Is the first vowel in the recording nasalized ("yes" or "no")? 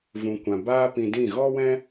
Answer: yes